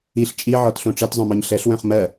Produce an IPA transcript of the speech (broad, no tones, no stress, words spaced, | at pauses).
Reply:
iɬ t͡ʃʼiʕɔtɬõ ʈ͡ʂɛtzˤœ̃mɔɲ ɬɛɬwœ̃χ mɜ